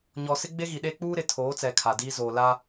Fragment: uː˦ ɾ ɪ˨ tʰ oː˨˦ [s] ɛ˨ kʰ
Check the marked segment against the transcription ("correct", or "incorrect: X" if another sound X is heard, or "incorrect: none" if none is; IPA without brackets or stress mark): incorrect: t͡s